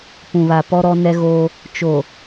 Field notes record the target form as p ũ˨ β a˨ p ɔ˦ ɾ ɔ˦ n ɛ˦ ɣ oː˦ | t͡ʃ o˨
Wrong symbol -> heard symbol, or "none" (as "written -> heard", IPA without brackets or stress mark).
none